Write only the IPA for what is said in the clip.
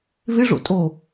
vɪʐo̰ tʼo

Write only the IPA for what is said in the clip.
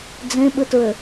d͡zẽɓɯtɹø

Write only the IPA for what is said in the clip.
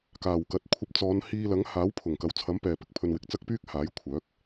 kaː˨˩wkɐ˨t̚ kʷʰɐ˧p̚t͡sɔː˨˧nhiː˧lɐ˨˥ŋ haː˨˥wpʰʊ˨˩ŋkɐ˨wt͡sʰɐ˨˥m pɛː˨pɪ˨˥k̚pʰɵ˧nwɪ˨k̚ t͡sɐ˥k̚pyː˥k̚haː˨˥j kʷʰœː˨˥k̚

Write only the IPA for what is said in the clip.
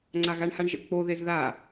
ŋ͡ǀaɣaɳhaɳʒə̰ k͡po ðezða

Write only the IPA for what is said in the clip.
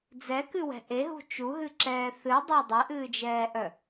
d͡zɛkɨwɛ̤ ʔeɦṳ t͡ʃuɦɨǁɛː θɨdˤa dˤɛʔɨːd͡ʒɛːʔœ

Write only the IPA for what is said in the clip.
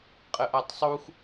qʼəʔatˤsˤux

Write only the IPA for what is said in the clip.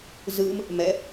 zɯm | mɛ

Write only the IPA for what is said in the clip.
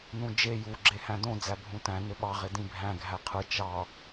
nũd͡ʒe juɡ͡ǁe hæ̃dõ d͡zæbʱũtæ̃ nøɓɑʁe dĩbʱæ̃ ɡʱæqʰɯ t͡ʃɑ

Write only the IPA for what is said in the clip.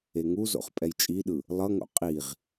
eŋuzo̰χ pʼɛjt͡ʃʼiɗɯ | lˠʌŋo̰ qʼiʁ

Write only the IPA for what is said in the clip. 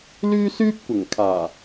lyː˥ syː˥p̚kʷɪ˨˩ŋkʰaː˨˩

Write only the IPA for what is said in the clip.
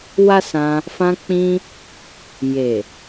wa˦sã˧ | fã˧k͡pĩ˧ | je˨

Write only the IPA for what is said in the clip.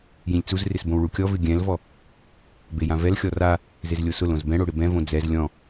jĩlʲt͡suzrɪs bõwɭukʲɔvɪ ɡʲɛ̃lvɔ | bejãvɛlxʲɔ ra | zezlʲosʊlõz bɛ̃ɽo ɽɪbɛ̃võ d͡zɛz lʲɔ̃

